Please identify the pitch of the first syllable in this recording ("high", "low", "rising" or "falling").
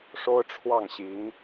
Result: high